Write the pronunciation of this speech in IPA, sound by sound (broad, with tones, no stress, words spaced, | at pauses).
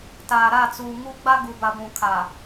taː˨ɾa˦˨ t͡suː˨ŋu˦ ɡ͡ba˦ɡu˨ba˨ ɡʷũ˨kʰa˨